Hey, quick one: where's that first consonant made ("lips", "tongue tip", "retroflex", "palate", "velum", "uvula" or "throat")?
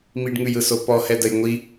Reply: lips